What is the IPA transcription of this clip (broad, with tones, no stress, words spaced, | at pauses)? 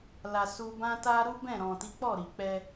la˧ su˧bã˦ ta˦ ɾu˦ bɛ̃˦˨ɾɔ̃˨ti˨˦k͡pɔ˦˨ ɾi˨k͡pɛ˧